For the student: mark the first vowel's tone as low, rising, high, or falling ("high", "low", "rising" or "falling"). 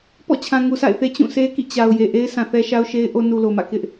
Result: falling